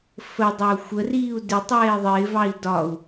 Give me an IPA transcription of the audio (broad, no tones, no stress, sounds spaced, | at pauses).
f ə dˤ ʌ u̯ xʷ ə r iː u̯ d ɪ tˤ ɛː i̯ ðˤ ɪː v ɑ i̯ d ɒ u̯